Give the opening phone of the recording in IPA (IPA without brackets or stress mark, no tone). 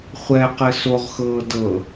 χʷ